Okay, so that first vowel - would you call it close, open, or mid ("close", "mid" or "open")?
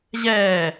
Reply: mid